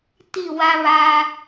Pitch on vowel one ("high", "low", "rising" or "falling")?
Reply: falling